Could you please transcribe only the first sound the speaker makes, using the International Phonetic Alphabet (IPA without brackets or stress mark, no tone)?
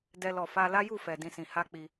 d